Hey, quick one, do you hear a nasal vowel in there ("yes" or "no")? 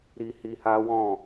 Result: yes